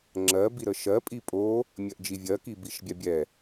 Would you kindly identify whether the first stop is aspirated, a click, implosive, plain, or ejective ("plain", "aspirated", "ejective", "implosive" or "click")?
click